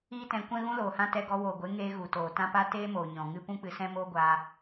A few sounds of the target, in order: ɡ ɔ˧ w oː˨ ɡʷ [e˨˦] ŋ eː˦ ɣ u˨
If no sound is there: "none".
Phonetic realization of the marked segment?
e˨˦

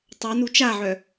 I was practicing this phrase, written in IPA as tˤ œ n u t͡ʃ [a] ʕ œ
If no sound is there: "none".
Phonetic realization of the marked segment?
a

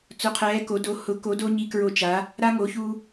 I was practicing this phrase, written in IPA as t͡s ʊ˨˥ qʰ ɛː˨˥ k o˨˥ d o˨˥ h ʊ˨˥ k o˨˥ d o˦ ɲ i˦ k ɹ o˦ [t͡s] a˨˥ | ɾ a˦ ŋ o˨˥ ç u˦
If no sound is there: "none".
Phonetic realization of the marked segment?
t͡ʃ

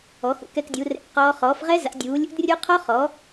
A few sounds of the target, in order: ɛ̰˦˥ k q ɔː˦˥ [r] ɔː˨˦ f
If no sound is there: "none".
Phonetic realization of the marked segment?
χ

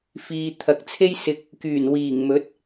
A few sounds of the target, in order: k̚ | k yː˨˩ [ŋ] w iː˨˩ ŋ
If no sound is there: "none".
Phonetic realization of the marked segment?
n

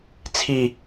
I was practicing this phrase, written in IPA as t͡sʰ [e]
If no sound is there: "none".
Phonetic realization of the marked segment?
i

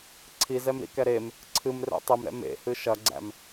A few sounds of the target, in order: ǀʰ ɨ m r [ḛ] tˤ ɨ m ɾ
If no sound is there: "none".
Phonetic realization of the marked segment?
ɛ̰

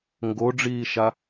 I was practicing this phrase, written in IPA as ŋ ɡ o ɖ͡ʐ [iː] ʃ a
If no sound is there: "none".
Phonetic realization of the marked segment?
iː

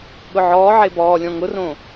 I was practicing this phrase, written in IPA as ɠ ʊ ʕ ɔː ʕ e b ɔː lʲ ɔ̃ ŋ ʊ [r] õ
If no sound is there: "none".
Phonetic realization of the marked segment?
r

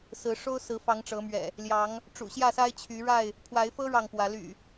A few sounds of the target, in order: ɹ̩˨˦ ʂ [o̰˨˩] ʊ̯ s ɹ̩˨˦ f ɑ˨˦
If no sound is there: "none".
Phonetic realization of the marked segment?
o˦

